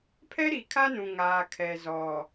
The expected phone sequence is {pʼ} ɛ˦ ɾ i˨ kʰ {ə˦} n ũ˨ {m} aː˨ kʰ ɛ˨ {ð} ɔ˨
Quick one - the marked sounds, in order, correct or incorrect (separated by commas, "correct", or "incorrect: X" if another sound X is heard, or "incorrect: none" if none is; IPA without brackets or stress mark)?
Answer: incorrect: pʰ, incorrect: a˦, incorrect: ŋ, incorrect: z